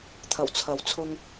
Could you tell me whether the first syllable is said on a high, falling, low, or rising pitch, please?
low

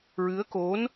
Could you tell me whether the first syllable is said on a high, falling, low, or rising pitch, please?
rising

